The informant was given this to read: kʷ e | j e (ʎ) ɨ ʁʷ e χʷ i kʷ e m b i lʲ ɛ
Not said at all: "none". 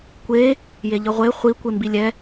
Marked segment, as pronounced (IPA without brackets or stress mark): ʎ